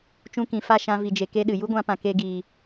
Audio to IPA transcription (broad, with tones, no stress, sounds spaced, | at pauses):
t͡ʃ ũ˧ k ĩ˨ f a˦˨ ʃ ã˧ v i˨ d͡ʒ e˨ k e˦ ɗ ɨ˨ j u˦ ɡʷ ã˧ p ã˨ k e˧ ɡ iː˨